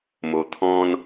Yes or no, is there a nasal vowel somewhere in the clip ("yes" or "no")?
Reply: yes